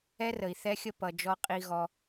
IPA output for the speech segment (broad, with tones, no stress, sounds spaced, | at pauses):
ɛ˦ r ə˨ i̯ θ ɛ˦ xʲ ə˦ p ʌ˨ d͡ʒ ɔ˦ qʼ i˦ ɣ ɔ˦